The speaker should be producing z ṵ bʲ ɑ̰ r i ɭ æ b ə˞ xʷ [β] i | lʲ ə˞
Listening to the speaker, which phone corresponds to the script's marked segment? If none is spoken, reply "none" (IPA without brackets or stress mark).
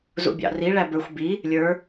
b